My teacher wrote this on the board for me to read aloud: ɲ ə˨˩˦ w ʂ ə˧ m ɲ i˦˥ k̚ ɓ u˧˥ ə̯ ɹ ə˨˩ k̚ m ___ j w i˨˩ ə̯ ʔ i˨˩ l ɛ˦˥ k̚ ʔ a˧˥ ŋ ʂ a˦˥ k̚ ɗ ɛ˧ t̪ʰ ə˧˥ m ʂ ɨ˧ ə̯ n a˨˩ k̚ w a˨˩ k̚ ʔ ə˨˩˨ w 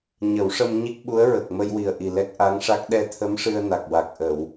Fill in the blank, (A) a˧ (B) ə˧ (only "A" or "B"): B